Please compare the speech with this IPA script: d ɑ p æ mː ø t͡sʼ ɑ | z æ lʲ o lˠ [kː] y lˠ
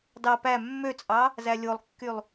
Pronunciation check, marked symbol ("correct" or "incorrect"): correct